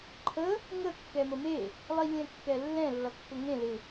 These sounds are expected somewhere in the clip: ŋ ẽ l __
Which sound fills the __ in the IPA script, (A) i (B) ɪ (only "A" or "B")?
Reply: B